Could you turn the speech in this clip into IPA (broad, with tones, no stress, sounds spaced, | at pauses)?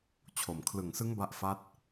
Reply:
t͡ɕʰ o˨˩ m kʰ l ɯ˨˩ ŋ s ɯ˦˥ ŋ b a˦˥ ʔ f a˦˥ t̚